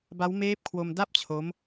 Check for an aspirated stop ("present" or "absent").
present